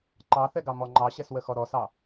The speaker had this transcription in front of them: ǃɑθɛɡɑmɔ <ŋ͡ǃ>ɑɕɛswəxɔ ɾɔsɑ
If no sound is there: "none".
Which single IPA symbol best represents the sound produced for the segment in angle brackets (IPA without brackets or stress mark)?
ŋ͡ǃ